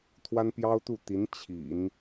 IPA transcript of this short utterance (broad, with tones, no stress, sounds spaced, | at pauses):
t̪ʰ w a˥ n p j ɑ˥ ʊ̯ t̪ u˥˩ t̪ i˧˥ n t͡ɕʰ ḭ˨˩˦ n